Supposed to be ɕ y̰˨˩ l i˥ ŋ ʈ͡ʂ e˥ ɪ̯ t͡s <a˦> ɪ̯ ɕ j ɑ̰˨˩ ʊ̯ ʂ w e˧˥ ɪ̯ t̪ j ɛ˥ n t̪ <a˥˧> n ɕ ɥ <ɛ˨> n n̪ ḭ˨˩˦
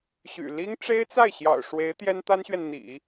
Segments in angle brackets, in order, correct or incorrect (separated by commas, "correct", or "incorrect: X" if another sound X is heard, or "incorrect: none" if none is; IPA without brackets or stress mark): incorrect: a˥˩, incorrect: a˥, correct